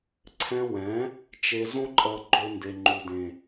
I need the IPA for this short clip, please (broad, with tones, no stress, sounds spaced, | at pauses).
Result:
ǀʰ ɛ̃˧ w ɛ̃˨˦ | t͡ʃ e˧ z õ˦ ǃʼ ʌ˧ ɡ͡ǃ o˧ n d e˨ ŋ͡ǃ u˨ d ẽ˨